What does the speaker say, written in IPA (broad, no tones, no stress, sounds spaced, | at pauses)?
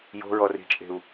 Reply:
j o̤ ɹ ɔ r i̤ t͡ʃʼ e̤ u̯